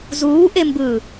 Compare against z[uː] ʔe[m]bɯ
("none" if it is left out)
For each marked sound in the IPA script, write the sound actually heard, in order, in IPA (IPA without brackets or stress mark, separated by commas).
uː, m